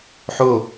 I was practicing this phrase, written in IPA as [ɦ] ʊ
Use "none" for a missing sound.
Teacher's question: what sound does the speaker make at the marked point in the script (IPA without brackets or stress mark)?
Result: ħ